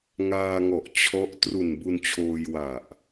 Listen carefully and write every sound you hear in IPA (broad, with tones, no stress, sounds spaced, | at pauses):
ŋ aː˧ ŋ ɔ˨˩ ʔ t͡ɕʰ ɔ˦˥ ʔ t r u˨˩ n b u˧ n t͡ɕʰ oː˧ j w a˨˩ ʔ